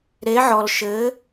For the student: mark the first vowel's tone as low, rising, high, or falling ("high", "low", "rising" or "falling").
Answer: rising